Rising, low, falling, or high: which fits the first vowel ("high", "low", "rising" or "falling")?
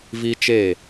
high